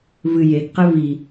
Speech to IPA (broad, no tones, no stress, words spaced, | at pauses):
vɨ jeɡqe vi